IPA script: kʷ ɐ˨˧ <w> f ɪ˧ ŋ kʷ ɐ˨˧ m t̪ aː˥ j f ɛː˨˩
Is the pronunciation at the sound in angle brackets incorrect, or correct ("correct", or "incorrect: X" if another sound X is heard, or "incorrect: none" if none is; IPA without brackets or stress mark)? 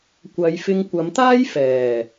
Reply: incorrect: j